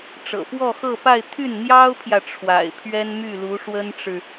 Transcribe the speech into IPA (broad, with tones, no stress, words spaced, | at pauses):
ʈ͡ʂɤ̰˨˩fwɔ˥˧xɤ˥˧pa˥˧ɪ̯ t̪ʰy˥˩nn̪jɑ˥ʊ̯pʰjä˨ ʈ͡ʂʰwa̰˨˩ɪ̯pʰɥɛ˥nmy˥˩lu˧˥ ʂwə˥nʈ͡ʂɻ̩˨